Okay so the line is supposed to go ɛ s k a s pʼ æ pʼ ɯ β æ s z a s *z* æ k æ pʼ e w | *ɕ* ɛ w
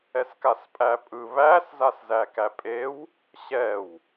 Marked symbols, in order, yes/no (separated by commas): yes, yes